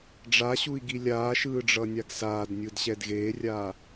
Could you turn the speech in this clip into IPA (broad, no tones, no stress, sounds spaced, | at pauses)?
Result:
ɖ͡ʐ a ɕ u i̯ ɡ i lʲ aː ʃ ɯː ɖ͡ʐ ʌ nʲ a ɡ s aː d nʲ ɯ d ɕ ɛ d ɣ eː rʲ aː